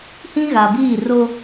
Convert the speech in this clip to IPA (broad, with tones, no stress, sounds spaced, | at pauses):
h ĩ˦ ɣ a˨ b iː˦˨ r o˦